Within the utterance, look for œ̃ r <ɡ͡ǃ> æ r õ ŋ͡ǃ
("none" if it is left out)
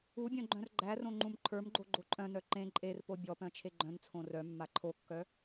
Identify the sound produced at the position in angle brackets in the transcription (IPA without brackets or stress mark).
ɡ͡ǃ